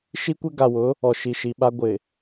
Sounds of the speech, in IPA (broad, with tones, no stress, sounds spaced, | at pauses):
ʃ i˦ kʷ ɛ˦ ɡ a˨ w ʊ˨˦ | ɔ˨ ʃ i˨ ʃ i˨ ɓ a˦ ɡʷ ɪ˨